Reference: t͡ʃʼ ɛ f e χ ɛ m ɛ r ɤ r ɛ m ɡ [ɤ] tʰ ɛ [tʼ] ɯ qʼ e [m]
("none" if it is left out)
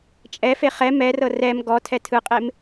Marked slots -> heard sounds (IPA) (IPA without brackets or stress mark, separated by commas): ɔ, tʰ, m